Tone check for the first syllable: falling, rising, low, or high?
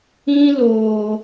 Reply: high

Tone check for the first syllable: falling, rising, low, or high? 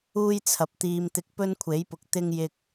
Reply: high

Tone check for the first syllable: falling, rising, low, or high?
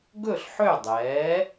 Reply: falling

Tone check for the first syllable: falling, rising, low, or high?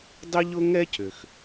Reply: high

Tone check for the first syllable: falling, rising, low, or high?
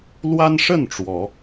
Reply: high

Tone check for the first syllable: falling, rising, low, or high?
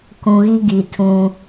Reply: low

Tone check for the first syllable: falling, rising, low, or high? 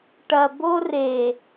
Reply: low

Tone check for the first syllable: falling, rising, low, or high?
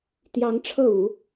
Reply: rising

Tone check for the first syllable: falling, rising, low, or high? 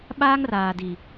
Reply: high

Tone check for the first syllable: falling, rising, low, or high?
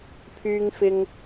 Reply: high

